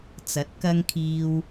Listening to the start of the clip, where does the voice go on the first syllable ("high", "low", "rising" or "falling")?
rising